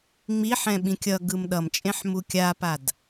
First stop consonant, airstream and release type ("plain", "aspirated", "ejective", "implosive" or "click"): implosive